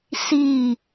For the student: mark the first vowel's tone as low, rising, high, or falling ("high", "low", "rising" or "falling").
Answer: falling